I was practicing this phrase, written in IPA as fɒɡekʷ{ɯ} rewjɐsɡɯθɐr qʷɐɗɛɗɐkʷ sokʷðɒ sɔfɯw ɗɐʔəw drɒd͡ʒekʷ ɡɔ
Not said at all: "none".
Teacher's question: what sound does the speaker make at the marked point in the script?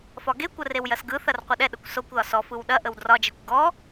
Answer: ə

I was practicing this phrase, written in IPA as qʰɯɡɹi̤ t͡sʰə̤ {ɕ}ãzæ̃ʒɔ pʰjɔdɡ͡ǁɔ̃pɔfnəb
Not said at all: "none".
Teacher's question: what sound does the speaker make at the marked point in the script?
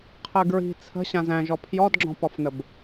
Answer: ɕ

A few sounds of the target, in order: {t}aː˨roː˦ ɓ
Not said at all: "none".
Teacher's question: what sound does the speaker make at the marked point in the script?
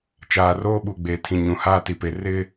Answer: t͡ʃ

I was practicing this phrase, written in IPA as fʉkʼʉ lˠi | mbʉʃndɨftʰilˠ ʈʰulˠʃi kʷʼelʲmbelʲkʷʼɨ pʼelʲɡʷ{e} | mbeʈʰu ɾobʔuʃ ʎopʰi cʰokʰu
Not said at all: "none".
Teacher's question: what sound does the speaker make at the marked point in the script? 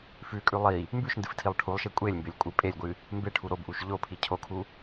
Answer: ɨ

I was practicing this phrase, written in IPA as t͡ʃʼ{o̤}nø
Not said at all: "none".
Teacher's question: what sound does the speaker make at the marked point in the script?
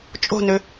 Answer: o̤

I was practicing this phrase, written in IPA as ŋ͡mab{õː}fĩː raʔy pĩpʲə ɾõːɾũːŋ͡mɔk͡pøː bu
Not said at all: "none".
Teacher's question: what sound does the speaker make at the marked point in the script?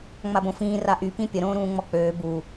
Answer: õ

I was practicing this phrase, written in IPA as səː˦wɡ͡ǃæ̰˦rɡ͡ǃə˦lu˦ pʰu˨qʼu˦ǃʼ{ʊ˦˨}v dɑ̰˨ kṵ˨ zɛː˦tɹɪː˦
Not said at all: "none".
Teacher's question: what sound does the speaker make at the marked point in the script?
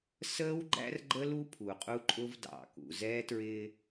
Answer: ʊ˦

